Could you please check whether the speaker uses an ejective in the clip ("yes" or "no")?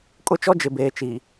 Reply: yes